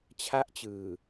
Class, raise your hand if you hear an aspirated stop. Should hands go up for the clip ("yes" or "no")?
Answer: yes